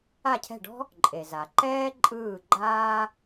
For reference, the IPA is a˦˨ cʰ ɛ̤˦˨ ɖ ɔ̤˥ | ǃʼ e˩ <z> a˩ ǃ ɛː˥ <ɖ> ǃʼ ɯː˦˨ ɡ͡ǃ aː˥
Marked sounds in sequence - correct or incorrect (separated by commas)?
correct, incorrect